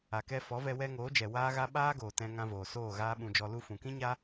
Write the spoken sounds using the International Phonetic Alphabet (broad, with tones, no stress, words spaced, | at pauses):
a˨kɛ˧ fɔ˨˦vɛ˧wɛ˧ ŋoː˨˦d͡ʒɛ˨ waː˦ɣa˦ ɓaː˦ɡoː˨ tɛ̃˧ ŋã˧voː˨ soː˦˨ ɣaː˦ɓũ˧d͡ʒɔ˧ lu˧fũ˨kĩ˦ɲa˦